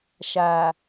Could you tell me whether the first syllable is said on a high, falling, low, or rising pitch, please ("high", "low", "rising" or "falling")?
low